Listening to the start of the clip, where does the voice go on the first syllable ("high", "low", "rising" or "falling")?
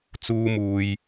high